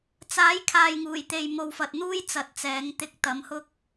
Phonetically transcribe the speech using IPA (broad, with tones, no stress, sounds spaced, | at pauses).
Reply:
t͡s aː˨˥ j kʰ aː˨ j ŋ uː˨˩ j t̪ e˨ j m o˨ w f ɐ˨ t̚ n̪ uː˥ j t͡s ɐ˨˥ t̚ t͡s ɛː˨˥ ŋ t̪ ɪ˧ k̚ t̪ ɐ˨˥ m h ʊ˥ k̚